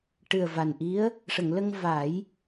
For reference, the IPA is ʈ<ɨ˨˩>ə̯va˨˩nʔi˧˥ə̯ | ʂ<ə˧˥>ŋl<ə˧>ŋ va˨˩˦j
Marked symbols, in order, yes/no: yes, no, yes

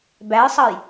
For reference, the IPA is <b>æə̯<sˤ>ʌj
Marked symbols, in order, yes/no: yes, yes

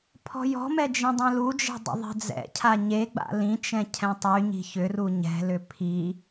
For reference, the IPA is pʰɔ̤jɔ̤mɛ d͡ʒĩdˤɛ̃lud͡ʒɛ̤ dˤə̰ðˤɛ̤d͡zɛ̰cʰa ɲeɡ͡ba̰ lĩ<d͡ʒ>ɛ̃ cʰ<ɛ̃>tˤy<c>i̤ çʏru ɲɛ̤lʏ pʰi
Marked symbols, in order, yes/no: no, yes, no

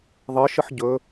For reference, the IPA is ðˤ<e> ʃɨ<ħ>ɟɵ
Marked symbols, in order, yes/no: no, yes

